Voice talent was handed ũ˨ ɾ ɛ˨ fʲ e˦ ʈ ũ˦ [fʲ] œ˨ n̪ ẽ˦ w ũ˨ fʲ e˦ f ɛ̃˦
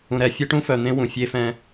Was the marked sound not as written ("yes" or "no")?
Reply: yes